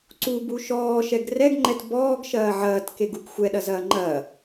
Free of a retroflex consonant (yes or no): yes